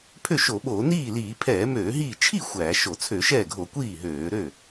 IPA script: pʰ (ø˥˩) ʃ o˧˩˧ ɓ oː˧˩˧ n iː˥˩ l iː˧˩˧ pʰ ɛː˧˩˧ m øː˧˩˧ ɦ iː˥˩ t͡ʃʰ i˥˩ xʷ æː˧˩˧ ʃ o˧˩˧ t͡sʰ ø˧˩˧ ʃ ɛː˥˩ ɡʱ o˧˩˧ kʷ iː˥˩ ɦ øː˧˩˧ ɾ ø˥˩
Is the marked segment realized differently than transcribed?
no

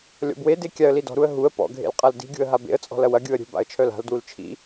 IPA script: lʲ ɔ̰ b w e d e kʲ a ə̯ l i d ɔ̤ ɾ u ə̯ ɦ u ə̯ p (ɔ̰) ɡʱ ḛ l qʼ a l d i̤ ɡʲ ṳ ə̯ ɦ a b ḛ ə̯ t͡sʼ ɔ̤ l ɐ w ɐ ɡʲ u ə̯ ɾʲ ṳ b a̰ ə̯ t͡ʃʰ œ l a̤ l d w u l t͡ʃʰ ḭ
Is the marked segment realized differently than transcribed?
no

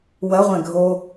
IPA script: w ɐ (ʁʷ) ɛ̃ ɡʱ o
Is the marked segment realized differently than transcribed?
no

